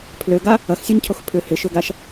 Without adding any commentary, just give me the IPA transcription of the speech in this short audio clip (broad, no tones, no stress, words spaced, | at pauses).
pʰløɡa | ɐxsʲœɲcʰox pʰʏ hɪʃøɡaʃ